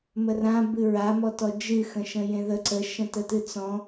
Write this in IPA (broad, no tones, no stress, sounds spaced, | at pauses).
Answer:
m ə r ã b ɨ ɹ a m ɔ t ɔ d͡ʒ ɨ x ə̃ ʃ ə̃ j ẽ ð ə ǀ ə ʃ ə̃ t ə t ɨ t͡s ɔ̃